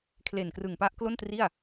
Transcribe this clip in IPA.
kʰ l e˨˩ n k r ɯ˨˩ ŋ p a˦˥ ʔ k l o˥˩ n t r i˥˩ a̯

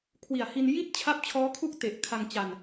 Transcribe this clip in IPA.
kʰ w i˨˩ a̯ h i˧ n j i˥˩ t̚ t͡ɕʰ a˦˥ p̚ t͡ɕʰ ɔː˦˥ kʰ u˥˩ k̚ t e˨˩ ʔ kʰ a˧ ŋ t͡ɕ a˧ n

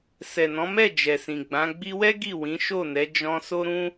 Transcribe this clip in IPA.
s ɛ˨ n ɔ̃˨˦ m ɛ˦˨ d͡ʒ ɛ˨ s ĩ˨ ɡ͡b ã˨˦ ɡ͡b i˧ w ɛ˦ ɡ i˦˨ w ĩ˨˦ ʃ o˦˨ n ɛ˨˦ d͡ʒ ɔ̃˧ s o˦ ɾ ũ˦

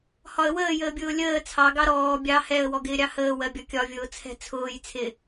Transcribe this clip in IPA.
h ɒ ə̯ w əː j əː bʲ ʊː lʲ əː t͡sʰ ɑ ɡ ɑ ɾ ɔː bʲ ɑ h ɛ ə̯ w ɔ ɡ ɪː ɾʲ ɑ h əː w ɜ bʲ ɒ kʲ ɒ vʲ ʊː t͡sʰ ɛ̤ t͡sʰ ʊː j t͡sʰ ɪ

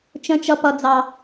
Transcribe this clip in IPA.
t͡ʃ ə̃˨˦ t͡ʃ ʌ˨ p ʌ˨ d͡z ɑ˨

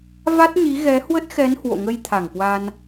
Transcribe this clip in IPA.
v a˦˥ t̚ ɲ i˨˦ ɣ ɛ˨˦ h w ə˦˥ t̚ x ɛ˨˦ n h w o̰˧˨ ŋ ə˧ j t̪ʰ a˧˩ ŋ k w a˧ n

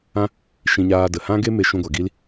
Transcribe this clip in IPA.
ã˦ | ʃ ĩ˧ ɲ aː˧ d ə˨ h ã˦ ɡ e˦ m e˧ ʃ ũ˧ ɡʷ a˨ ɡ i˦ l

